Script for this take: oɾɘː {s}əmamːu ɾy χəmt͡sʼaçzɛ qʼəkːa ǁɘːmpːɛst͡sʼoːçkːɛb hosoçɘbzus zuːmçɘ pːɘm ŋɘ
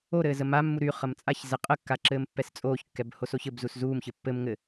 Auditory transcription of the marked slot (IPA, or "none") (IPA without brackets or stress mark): z